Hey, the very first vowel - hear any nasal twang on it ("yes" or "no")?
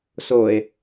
no